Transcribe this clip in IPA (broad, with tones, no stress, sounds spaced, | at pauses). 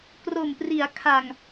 k r o˨˩ m p r i˩˦ a̯ kʰ a˨˩ ŋ